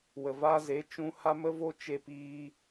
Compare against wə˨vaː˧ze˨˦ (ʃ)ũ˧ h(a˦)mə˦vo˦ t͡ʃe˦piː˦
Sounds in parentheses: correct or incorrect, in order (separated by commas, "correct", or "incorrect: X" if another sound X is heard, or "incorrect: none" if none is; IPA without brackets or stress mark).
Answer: incorrect: t͡ʃ, correct